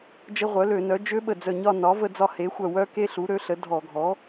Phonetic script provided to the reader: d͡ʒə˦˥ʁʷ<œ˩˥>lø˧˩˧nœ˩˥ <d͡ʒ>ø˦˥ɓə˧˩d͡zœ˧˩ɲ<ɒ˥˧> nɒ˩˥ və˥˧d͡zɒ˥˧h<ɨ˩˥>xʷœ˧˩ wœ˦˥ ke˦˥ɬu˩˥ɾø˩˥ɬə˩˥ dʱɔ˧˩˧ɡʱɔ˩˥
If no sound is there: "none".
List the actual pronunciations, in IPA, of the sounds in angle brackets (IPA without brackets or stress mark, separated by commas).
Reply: œ˩˥, d͡ʒ, ɒ˥˧, e˩˥